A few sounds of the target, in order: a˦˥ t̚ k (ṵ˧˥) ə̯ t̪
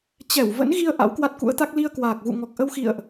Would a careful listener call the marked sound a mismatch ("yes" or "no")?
no